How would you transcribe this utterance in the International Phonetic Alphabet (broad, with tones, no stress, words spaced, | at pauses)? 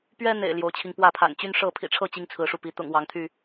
pɥɛ˦n̪ḛ˨˩ɪ̯ ljo˨˦ʊ̯t͡ɕʰi˧ŋ pwä˥˨pʰa̰˨˩n t͡ɕy˦nʂɤ˥˨ pʰḭ˨˩ʈ͡ʂʰɤ˥˨ t͡ɕi˦ŋt͡sʰɹ̩˨˦ʂu˧pi˨˦ t̪ʊ̰˨˩ŋ wɑ˨˦ŋt̪ʰy˥˨